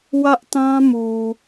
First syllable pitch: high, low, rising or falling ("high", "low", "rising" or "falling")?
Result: high